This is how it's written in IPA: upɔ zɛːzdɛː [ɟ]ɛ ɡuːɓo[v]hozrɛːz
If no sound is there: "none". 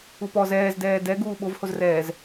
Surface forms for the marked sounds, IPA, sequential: d, v

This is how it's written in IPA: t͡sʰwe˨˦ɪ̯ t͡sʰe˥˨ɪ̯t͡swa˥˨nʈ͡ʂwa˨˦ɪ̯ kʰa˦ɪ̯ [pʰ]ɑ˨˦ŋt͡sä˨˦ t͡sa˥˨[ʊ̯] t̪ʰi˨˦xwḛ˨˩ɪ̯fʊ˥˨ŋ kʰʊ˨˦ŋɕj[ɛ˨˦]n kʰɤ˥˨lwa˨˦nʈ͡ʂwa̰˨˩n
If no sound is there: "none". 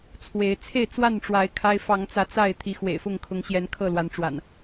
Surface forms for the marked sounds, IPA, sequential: f, ɪ̯, ɛ˨˦

